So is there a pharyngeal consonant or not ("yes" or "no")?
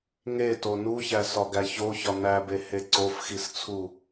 no